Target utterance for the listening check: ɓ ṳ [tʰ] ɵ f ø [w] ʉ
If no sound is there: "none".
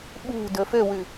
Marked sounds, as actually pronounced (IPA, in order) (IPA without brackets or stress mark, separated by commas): d, w